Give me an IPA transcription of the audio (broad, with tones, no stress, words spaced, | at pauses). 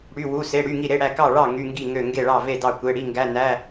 ɽy˧˥˧wu˧˥˧se˧˥˧ ɽy˧˥˧ŋi˥˨ ɾe˧˥˧ɽæ˥˨ kɑ˥˨ ɭɑ˥˨ ŋy˧˥˧ŋɡi˥˨ ŋø˥˨ ŋɡe˥˨ɭɑ˥˨ve˥˨ dɑ˥˨kʷe˧˥˧ ɽi˧˥˧ŋɡæ˧˥˧ næ˧˥˧